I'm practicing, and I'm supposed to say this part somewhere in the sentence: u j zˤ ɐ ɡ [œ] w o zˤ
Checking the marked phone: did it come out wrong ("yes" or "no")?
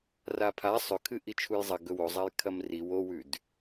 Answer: yes